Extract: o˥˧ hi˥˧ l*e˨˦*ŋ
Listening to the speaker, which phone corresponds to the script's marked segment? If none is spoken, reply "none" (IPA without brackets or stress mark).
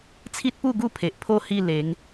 e˨˦